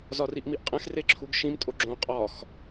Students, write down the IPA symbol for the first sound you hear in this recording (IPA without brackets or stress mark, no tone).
z